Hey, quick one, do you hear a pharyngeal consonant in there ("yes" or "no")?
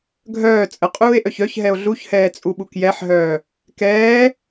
yes